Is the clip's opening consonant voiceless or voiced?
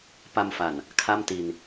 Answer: voiceless